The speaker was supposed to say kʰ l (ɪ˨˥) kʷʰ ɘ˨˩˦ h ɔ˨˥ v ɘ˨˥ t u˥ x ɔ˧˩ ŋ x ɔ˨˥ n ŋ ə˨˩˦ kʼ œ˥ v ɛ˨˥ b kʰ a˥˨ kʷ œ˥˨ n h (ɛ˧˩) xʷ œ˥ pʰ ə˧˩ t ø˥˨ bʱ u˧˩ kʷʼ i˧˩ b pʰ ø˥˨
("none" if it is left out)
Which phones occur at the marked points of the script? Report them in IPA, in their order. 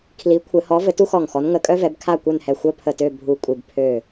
i˨˥, ɛ˧˩

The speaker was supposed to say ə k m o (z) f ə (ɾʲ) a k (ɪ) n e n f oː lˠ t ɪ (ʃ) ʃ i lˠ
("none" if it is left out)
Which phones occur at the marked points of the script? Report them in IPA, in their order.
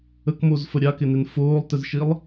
z, ɾʲ, ɪ, z

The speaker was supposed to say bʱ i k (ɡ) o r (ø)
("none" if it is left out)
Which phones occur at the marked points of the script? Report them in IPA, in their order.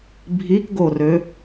ɡ, ø

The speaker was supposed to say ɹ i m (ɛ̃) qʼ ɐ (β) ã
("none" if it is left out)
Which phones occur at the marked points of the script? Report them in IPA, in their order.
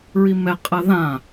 ɛ, ð

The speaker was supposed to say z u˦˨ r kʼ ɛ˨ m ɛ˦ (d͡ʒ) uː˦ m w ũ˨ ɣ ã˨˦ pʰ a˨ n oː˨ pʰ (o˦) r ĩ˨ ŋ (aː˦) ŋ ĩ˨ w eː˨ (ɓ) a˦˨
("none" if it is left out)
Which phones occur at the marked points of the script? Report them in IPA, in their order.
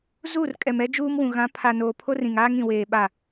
d͡ʒ, o˦, aː˦, ɓ

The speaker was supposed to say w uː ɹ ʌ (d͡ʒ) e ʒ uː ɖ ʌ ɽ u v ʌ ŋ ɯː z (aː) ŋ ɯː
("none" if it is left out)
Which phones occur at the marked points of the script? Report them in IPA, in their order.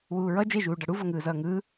d͡ʒ, ʌː

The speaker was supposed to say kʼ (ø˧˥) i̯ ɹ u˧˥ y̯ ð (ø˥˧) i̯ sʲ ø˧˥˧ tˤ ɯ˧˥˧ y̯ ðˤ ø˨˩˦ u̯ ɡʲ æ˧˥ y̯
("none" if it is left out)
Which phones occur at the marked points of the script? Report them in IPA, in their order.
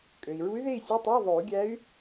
ø˩, e˥˧

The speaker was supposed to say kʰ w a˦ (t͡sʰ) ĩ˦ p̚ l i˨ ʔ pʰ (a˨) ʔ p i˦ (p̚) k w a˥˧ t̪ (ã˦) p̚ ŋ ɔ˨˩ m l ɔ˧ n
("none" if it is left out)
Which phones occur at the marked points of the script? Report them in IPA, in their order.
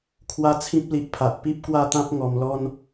t͡sʰ, a˨, p̚, ã˦

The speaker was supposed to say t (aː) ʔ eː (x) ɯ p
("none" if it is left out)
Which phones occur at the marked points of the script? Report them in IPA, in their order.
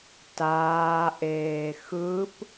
aː, x

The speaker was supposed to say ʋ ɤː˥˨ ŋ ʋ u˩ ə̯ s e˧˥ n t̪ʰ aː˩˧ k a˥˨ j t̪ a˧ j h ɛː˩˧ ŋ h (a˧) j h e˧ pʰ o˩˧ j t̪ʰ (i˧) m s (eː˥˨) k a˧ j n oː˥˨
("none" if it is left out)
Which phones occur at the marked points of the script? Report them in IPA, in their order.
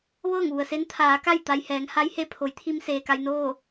a˧˥, i˧, eː˩

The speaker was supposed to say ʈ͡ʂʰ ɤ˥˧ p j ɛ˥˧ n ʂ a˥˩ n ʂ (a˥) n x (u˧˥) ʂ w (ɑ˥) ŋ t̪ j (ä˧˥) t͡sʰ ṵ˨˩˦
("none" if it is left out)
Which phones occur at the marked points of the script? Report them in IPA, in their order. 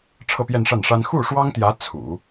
a˥, u˥˩, ɑ˥, ä˧˥

